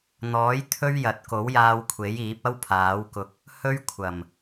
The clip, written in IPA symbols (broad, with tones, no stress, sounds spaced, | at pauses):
n̪ ɔː˨˥ j t̪ʰ ɵ˥ ɥ j ɐ˨˥ t̚ k o˨˥ w j aː˧ w kʷʰ e˨˥ j iː˨˥ p̚ ɐ˥ w pʰ aː˨˥ w k ʊ˧ k̚ | h ɵ˥ ɥ kʷʰ ɐ˨˩ m